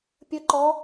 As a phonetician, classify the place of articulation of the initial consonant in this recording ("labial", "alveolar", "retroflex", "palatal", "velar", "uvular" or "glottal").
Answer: labial